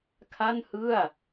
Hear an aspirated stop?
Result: yes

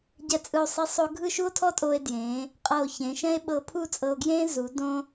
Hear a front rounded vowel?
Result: no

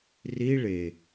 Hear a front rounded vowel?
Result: no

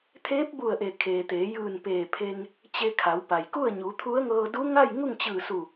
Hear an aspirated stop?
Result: yes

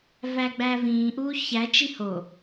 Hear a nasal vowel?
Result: yes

